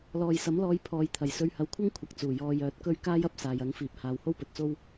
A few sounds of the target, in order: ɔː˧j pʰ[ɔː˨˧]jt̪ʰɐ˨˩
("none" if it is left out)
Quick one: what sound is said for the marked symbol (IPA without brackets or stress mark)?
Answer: ɔː˨˧